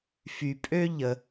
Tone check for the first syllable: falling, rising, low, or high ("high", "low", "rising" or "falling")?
low